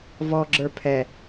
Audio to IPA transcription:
v ɔ ɡ͡ǁ ə˞ pʰ ɛ

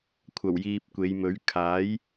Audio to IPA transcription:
kʷʰ ɐ˨˩ w j iː˨ p̚ kʷ e˨˧ j m ɵ˨˥ ɥ kʰ aː˨˥ j

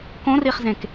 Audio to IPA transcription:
k õ r i χ z ẽ k

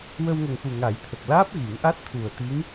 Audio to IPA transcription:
w ə˧ w ŋ ə˨˩ ŋ x u˨˩ ŋ a˨˩˦ j t̪ʰ ə˨˩ k̚ l aː˦˥ p̚ ɣ i˨˩˦ ŋ ʔ a˦˥ t̚ t̪ʰ u˨˩ ə̯ t̪ i˧˥ ŋ

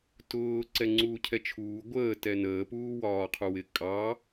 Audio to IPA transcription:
t ʊː ǀ ɛ ŋ͡ǀ uː cʰ ɛ t͡ʃʰ uː ɡʷ əː t ɛ n əː p uː w ɒː qʰ u w ɪ kʼ ɑ

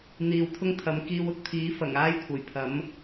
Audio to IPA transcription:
n̪ iː˨ w t̪ʰ ʊ˥ ŋ t̪ʰ ɐ˨˧ m k iː˧ w ʊ˨˥ k̚ t̪ʰ iː˨˥ f ɐ˨˩ ŋ aː˥ j kʷʰ ɐ˨˩ j pʰ ɐ˨˥ m

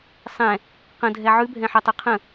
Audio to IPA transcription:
sˤ ɛ̃ | q ə̃ dʱ ɛ ʕ ʉ bʱ ɛ̃ ħ œ tˤ o qʰ ə̃

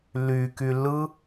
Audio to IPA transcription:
l y k y l ɯ

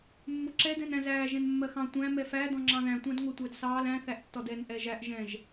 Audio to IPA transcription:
mː ʊ ǁ ɛ d ɛ̃ n æ̃ z æː ʒ ɛ̃ n mː ɜ x ɑ̃ tʷ æ̃ m ɛ f æ d ɔ̃ ŋ͡ǁ ɑ̃ ð æ̃ tʷ ɑ̃ d ŋʷ ɜ tʷ æ d s ɑː l æ̃ θ æ ʔ tː ɔ d ɛ n ʔ ɛ ʒ æ ʔ ʒ ɛ̃ ʒ

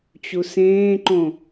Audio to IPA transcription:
t͡ɕ u s ẽː ǃ õ

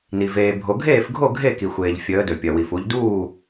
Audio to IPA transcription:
n i˩ v eː˩ bʱ o˩ ɡʱ eː˥˩ f ɡʱ o˥˩ ɡʱ e˥˩ k i˩ xʷ eː˩ ʎ fʲ əː˩˧ d ɵ˩ pʲ ɐ˩ w i˩ f u˩˧ ʎ d uː˥˩

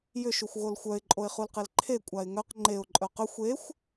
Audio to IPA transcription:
j ʏ ʃ u xʷ ɣ o l xʷ œ ɪ̯ ǃʼ o ɪ̯ χ u l q e l ǃʰ e kʷʼ a ɪ̯ ŋ œ q ŋ͡ǃ e ʊ̯ ǃʼ œ q ʏ xʷ e xʷ

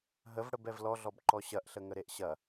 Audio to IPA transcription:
ɦ ə v ɽ ə b ɛ v l ɔ ɮ ɔ b ǃ ɔ ɕ ɐ ʔ ɬ ə ŋ ə ɾ e ʔ ɕ ɐ

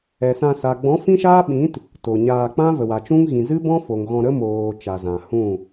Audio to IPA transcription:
ɛ˨ s ã˧ s a˨ ɡ͡b ɔ̃˨˦ f ĩ˦ ʃ aː˦ ɓ ĩ˨˦ t | t o˨ ɲ aː˧ k͡p ã˦ v ə˨ w a˨ t͡ʃ ũ˦ ŋ ɣ ĩ˨ z ɨ˦ b ɔ̃˦ f o˨ ŋ ɣ ɔ̃˧ ɾ ə˦ m oː˨ t͡ʃ a˨ z ã˨ h ũ˦˨

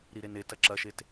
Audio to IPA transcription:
ɾ i ɾ e n e t ɐ ǁ ɐ ʃ e t

